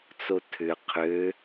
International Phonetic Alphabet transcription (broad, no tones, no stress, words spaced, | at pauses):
t͡sotʰʏ qʰø